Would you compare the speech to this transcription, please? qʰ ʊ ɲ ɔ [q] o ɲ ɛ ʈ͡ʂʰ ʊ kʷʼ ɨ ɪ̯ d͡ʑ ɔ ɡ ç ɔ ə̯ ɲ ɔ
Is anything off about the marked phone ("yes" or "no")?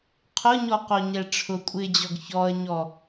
no